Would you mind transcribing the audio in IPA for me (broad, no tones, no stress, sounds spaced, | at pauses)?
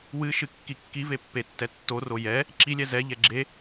w ɨ ʃ ɨ kː i kː i v e pː e tː ɛ tː o r o j ɛ | ǁ i lʲ ɛ z ɛ ʎ ɛ ɡ͡ǁ e